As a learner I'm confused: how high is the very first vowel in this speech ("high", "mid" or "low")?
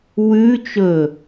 high